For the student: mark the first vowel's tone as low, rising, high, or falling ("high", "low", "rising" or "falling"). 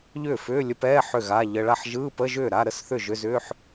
falling